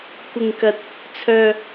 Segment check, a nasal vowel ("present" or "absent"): absent